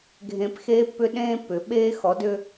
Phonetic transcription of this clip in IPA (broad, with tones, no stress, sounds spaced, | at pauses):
ɡʱ ẽ˨ p x eː˦ pː ʏ˦ ɗ ẽː˦ pː ʏ˨ ɓ eː˦ x ɔ˨˦ d ʏ˦